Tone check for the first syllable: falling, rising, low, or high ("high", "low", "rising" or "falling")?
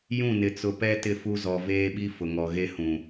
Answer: falling